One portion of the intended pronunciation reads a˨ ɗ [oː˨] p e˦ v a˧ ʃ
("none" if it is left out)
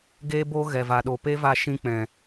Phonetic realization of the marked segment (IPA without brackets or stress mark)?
o˨